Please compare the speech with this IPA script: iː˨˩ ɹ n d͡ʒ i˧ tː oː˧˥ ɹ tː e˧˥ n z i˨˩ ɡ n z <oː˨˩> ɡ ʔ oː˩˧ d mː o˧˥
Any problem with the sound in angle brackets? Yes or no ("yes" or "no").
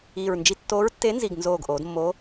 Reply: no